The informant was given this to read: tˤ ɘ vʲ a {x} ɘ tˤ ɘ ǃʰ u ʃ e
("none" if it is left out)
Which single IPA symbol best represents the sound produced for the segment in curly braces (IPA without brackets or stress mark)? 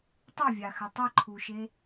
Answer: x